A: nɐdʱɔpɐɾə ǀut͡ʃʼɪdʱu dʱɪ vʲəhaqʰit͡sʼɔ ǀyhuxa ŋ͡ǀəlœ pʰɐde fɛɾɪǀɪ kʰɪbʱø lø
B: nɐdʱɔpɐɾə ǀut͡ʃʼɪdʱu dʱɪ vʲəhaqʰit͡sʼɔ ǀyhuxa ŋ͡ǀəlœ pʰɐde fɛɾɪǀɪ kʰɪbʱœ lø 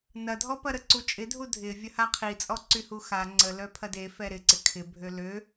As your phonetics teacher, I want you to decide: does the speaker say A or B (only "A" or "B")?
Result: A